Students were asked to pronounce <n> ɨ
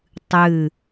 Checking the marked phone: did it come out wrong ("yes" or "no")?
yes